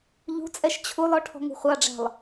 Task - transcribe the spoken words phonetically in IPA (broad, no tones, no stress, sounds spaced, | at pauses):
ʎ ṳ t͡sʼ ɛ ʃ t͡ɕʰ u lˠ ɔ ʈʰ ɔ̤ ŋ ṳ χʷ ɑ ɖ͡ʐ æ̤ lˠ